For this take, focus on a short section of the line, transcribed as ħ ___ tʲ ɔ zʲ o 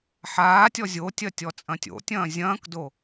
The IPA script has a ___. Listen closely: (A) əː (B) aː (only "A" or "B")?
B